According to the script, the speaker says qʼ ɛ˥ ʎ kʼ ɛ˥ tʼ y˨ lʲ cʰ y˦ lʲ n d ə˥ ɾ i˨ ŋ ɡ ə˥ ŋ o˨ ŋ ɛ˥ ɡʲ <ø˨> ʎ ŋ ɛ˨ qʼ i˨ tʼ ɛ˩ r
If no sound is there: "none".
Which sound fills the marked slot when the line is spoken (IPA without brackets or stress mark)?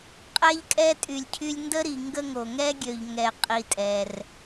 ø˨